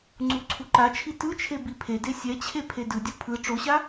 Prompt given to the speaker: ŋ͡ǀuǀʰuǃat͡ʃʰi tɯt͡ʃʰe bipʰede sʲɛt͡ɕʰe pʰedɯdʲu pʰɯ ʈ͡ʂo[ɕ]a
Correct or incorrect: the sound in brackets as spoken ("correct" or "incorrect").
correct